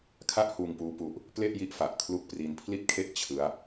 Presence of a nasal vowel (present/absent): absent